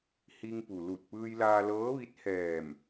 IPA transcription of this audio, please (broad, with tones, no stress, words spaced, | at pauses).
hi˧ŋpu˩lu˧˩t̚ pɯː˧jlaː˧lɤː˧˥ʋi˧˥t̚ hɛː˧˩m